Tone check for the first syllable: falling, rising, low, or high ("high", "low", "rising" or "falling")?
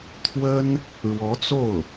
high